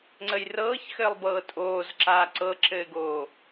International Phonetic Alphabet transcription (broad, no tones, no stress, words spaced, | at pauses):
ŋ͡ǀəjrɤːçxɘːlˠbɤː tʼoːzǁaː ǀɤǁɘːɡoː